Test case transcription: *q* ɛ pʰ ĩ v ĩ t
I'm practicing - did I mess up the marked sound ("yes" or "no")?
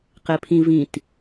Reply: no